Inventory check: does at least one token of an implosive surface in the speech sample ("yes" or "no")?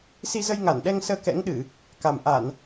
yes